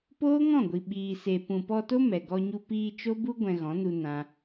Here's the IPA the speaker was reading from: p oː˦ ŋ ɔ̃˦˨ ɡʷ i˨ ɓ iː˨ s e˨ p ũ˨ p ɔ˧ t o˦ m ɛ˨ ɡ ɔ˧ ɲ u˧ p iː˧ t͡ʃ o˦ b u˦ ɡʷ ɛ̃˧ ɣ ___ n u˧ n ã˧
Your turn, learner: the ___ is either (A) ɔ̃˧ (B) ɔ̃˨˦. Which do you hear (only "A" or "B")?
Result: B